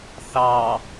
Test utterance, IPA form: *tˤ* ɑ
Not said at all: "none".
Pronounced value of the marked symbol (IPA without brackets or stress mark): θ